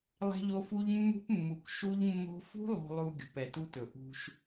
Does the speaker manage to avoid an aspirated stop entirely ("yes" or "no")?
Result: yes